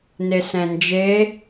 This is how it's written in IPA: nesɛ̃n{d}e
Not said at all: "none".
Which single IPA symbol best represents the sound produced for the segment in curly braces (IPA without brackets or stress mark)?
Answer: d͡ʒ